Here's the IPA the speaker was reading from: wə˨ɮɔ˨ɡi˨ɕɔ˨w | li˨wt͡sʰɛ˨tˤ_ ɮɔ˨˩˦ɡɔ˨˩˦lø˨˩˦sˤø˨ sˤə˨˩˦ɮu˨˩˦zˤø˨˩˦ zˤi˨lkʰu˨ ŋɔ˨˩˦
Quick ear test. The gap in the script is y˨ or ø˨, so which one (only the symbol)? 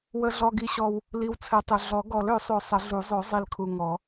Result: ø˨